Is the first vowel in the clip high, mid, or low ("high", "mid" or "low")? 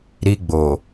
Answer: high